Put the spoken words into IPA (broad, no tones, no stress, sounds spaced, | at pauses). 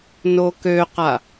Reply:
n o k ø q a